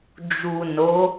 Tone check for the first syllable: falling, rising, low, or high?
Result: low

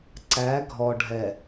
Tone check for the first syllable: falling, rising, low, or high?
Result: rising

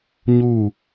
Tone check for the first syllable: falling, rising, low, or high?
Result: falling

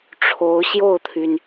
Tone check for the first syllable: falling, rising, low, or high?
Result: rising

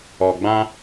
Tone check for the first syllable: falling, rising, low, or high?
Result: low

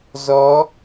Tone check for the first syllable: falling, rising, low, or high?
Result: rising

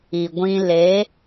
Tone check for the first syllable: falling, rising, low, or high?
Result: low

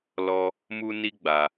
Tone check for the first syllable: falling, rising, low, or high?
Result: high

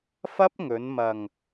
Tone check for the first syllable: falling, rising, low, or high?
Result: high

